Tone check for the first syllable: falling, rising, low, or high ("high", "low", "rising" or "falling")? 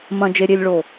low